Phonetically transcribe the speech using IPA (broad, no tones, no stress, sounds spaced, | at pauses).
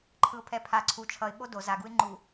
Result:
ǃʰ ɯ ʊ̯ pʰ ɛ pʰ a ǀʰ u t͡ʃʰ ʌ ɪ̯ ɓ o d o z a ɡ u ɪ̯ ŋ͡ǃ u